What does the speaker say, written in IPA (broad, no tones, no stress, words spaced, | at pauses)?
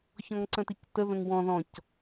çɔ̃ŋǀə̃tictə ðə̃ŋwɔ̃ ðɔ̃c